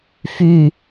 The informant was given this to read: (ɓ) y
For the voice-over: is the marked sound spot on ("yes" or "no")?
no